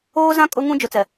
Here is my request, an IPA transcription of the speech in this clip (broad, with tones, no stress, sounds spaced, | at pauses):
oː˦ z ã˦ kʼ ʊ˦ ŋ ũ˦ d͡ʒ ʊ˨ t͡s ɛ˨